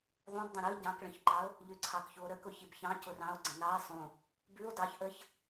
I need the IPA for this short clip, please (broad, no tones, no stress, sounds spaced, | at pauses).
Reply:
ðˤ ũ b dˤ ə̃ ɾ ɯ ɟ ɑ̃ k ɭ ə̃ ç ǃ ɑ o̯ | ʎ ʉ ǀʰ ɑ k ç u o̯ ɾ ə k ʊ ç i b ç ɑ̃ c ʊ r ɑ̃ o̯ ɡ͡ǀ ə̃ n ɑ e̯ sˤ ũ | b ʉ o̯ d ɑ ç ʔ ə ç